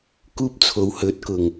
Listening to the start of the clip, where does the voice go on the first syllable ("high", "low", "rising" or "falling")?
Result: high